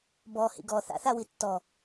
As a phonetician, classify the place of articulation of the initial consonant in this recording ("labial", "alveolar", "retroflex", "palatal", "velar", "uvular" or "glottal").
labial